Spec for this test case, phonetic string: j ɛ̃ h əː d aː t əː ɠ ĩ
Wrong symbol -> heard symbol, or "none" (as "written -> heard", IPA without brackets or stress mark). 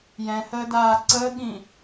t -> ǀ